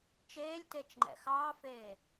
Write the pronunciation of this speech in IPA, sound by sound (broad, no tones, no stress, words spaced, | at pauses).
t͡ʃeːlʲtet͡ʃŋ͡ǃɛ̰ xɑːfeː